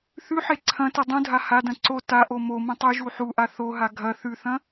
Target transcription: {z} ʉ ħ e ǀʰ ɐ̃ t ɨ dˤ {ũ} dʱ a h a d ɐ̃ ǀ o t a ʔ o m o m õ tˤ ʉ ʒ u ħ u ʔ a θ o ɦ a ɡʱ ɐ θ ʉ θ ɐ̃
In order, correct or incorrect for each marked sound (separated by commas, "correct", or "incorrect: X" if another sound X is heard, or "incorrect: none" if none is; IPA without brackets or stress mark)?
incorrect: θ, correct